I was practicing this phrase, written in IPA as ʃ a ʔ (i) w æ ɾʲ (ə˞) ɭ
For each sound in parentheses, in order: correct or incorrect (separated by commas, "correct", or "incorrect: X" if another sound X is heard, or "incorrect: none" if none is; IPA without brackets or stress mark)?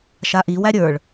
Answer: correct, correct